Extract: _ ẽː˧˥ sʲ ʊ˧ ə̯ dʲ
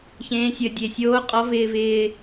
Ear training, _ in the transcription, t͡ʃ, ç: ç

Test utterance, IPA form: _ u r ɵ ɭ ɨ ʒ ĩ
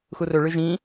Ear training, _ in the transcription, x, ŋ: x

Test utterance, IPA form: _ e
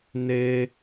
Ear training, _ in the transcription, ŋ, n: n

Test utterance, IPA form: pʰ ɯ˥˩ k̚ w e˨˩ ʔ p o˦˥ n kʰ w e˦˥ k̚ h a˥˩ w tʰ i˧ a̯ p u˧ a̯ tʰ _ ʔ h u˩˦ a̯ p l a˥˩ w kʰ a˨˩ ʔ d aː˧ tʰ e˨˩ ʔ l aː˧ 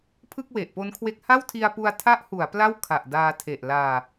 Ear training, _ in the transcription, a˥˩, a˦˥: a˦˥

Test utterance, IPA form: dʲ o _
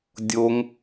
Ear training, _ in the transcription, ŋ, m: ŋ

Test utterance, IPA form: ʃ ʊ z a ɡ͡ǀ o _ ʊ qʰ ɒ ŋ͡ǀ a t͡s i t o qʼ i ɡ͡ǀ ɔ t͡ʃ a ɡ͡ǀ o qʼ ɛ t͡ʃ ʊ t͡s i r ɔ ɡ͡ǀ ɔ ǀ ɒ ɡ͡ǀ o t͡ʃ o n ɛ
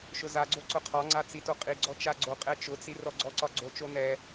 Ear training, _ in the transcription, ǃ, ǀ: ǀ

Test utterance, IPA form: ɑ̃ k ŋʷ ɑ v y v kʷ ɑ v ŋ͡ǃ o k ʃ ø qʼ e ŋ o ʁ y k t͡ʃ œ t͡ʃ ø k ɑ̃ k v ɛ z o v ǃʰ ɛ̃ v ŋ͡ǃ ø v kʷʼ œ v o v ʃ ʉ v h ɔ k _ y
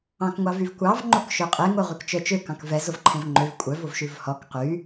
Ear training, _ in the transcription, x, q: q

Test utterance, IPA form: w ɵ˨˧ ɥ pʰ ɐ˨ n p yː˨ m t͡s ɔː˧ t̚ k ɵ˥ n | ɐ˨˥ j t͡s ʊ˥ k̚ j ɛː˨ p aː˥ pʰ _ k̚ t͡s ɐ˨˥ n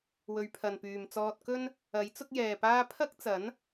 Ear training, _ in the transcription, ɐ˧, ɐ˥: ɐ˥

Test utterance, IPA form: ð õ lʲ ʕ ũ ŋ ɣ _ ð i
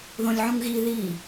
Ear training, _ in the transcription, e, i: i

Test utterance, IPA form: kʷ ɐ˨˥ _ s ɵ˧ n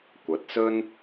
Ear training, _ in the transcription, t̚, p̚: t̚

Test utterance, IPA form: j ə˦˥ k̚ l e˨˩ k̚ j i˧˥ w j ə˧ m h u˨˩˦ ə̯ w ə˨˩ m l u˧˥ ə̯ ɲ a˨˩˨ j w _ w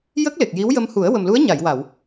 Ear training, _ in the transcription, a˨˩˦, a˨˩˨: a˨˩˨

